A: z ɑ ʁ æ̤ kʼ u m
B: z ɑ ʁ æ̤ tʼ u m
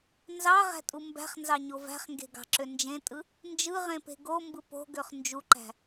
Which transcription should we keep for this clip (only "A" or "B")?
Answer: B